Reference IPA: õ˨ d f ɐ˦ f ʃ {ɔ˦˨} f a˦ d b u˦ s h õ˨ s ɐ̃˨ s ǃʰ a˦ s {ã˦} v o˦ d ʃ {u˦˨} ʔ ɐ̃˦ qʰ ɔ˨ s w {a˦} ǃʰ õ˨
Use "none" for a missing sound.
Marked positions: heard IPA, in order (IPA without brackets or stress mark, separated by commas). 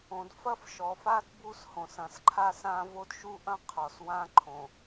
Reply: ɔ˨, ã˦, u˦, ã˦